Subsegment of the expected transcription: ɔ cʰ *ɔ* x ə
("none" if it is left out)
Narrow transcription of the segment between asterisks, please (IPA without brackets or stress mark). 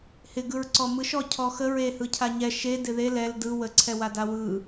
ɔ